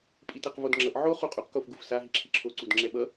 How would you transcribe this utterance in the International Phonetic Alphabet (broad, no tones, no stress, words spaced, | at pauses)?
pʼitʌqvodŋ͡ǁʌʔ ʕo χuqʼuq kofɡufsa ɦiǁʰiǁʰo ǀudŋ͡ǁɛɓʌ